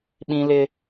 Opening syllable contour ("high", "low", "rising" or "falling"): high